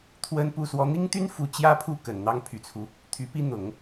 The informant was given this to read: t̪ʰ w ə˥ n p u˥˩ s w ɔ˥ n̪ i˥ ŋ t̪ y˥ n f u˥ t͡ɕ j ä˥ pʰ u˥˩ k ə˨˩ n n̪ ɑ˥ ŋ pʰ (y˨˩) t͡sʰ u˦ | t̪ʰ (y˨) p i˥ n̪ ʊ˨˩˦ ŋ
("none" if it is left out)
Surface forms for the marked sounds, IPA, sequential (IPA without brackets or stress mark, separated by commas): y˨˩, y˧˥